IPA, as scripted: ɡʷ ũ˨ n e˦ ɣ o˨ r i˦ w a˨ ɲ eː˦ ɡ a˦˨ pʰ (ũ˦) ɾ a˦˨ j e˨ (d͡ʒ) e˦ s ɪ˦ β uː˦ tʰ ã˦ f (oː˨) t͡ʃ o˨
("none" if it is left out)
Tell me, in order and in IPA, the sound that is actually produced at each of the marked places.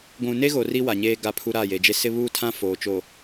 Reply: u˦, d͡ʒ, oː˨

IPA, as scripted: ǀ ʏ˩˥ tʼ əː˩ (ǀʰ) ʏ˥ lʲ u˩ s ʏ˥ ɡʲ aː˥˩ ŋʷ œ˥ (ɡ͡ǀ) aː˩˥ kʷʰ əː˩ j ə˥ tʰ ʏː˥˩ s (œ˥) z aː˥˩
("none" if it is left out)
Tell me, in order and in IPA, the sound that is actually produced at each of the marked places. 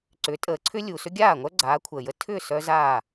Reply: ǀʰ, ɡ͡ǀ, œ˥

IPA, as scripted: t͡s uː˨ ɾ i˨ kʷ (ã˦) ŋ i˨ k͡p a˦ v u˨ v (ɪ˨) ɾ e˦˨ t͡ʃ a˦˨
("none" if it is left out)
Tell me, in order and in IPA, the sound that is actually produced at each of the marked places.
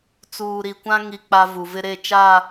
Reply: ã˦, ɪ˨

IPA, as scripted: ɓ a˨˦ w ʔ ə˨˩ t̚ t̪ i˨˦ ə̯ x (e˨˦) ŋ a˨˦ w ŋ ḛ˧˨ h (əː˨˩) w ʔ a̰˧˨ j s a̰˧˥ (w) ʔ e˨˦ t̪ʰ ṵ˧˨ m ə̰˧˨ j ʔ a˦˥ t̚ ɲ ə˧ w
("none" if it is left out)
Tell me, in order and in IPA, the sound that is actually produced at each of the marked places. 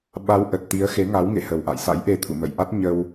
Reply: e˨˦, ə˨˩, j

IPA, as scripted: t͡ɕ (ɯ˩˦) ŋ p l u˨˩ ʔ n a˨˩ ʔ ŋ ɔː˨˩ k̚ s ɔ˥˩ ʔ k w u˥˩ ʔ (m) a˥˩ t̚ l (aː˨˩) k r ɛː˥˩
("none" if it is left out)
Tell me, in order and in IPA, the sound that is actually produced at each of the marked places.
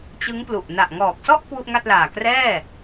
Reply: ɯ˦˥, ŋ, aː˨˩

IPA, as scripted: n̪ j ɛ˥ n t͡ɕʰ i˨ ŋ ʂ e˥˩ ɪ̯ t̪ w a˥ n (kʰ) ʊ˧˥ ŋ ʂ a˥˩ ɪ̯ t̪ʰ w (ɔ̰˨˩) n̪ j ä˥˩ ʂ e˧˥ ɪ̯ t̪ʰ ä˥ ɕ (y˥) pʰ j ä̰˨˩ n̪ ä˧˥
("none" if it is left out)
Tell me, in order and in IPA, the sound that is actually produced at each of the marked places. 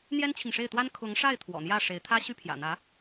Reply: kʰ, ɔ̰˨˩, y˥

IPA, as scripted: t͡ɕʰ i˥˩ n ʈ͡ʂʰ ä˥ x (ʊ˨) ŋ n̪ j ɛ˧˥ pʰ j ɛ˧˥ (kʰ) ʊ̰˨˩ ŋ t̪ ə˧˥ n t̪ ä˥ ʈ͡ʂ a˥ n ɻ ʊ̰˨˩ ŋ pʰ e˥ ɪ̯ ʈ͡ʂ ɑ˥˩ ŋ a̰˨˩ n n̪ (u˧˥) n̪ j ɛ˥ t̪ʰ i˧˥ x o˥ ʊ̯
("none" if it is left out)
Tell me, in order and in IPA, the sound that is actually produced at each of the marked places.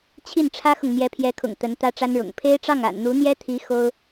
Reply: ʊ˨, kʰ, u˧˥

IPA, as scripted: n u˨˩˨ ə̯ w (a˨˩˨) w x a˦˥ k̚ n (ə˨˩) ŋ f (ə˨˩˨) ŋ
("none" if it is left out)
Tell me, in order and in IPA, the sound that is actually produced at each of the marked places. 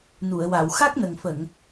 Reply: a˨˩˨, ə˨˩, ə˨˩˨

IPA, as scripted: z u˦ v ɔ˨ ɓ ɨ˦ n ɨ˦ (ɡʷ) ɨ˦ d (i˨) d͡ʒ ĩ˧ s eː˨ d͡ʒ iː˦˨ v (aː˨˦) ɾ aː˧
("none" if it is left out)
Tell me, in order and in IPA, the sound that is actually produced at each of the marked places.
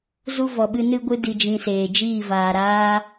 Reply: ɡʷ, i˧, aː˨

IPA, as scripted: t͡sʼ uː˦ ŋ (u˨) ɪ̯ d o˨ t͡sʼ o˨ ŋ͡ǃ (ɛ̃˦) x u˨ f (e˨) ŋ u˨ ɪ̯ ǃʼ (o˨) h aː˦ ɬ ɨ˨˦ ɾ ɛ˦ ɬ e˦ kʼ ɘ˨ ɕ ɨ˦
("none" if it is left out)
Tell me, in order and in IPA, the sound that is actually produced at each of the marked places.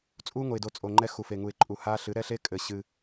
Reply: o˨, ɛ˦, e˨, u˨

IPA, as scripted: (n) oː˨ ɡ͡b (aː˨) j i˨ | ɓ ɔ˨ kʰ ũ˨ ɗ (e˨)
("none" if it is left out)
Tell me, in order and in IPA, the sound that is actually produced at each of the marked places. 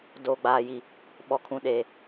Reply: d, aː˨, eː˨

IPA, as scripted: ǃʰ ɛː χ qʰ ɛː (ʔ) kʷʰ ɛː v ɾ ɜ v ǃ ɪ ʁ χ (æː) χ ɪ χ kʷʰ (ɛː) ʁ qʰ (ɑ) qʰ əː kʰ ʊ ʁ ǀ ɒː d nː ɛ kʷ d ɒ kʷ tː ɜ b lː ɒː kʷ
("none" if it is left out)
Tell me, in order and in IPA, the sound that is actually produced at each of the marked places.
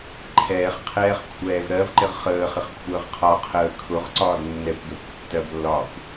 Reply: χ, əː, əː, ɒ

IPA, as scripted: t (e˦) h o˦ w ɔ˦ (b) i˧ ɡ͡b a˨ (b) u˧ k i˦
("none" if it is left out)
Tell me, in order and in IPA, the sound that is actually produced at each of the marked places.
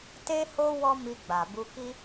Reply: e˦, m, b

